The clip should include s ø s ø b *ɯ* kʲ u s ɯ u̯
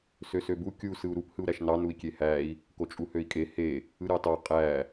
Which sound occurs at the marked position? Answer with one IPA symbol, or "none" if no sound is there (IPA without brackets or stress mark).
u